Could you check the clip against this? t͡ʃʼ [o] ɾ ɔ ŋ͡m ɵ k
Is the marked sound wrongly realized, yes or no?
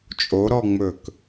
no